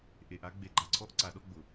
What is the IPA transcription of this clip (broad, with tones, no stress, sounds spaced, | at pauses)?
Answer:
ʔ e˨ ʔ a˦ ɡ͡b e˨ ɡ͡ǃ a˨ ǀʰ ɔ˦ ʔ ǀ a˨˦ ɗ ɔ˦ ɡ͡b ʊ˨